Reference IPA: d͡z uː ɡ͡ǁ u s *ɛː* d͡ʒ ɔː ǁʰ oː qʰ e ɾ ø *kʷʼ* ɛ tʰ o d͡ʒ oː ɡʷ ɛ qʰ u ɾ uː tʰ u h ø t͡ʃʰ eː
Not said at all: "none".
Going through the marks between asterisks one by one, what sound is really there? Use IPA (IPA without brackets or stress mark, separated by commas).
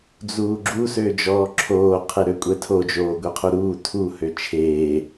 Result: øː, kʷʼ